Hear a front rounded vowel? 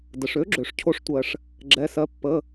yes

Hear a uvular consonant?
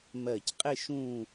yes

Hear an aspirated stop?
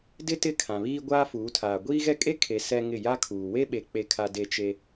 yes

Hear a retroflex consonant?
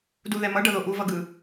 yes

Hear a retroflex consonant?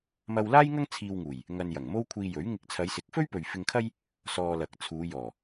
no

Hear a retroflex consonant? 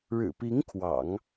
yes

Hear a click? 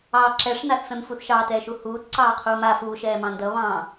yes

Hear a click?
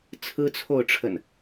no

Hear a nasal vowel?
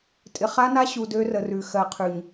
no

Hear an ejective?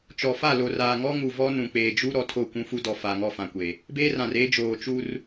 no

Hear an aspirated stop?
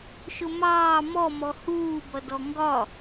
no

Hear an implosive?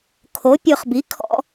no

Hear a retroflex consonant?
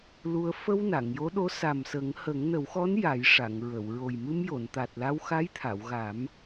yes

